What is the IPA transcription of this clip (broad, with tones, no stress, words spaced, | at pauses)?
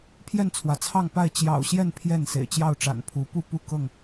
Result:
pʰjɛ˥˨nt͡sʰwä˩t͡sʰɑ˥˨ŋpa˥˨ɪ̯ t͡ɕjɑ̰˨˩ʊ̯ɕjɛ˥˨n pʰjɛ˥˨nsḛ˨˩ɪ̯ t͡ɕjɑ˥˨ʊ̯ʈ͡ʂa̰˨˩npʰu˨˦ pu˥˨pu˥˨kɤ˥˨ŋ